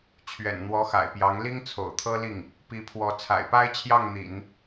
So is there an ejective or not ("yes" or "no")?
no